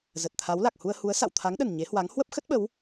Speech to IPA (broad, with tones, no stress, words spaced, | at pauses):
zə˨˩t̚t̪ʰa˨˦wla˨˩k̚ hu˧ə̯hu˨˦ə̯ sa̰˧˨wt̪ʰa˨˦ŋɗə˨˩n ɲe˨˦hwa˨˦ŋ hwə˦˥p̚xə˦˥t̚ɓə˨˦w